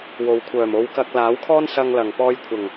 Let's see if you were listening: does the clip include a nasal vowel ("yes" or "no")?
no